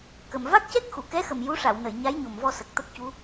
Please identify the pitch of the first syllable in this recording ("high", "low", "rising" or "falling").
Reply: low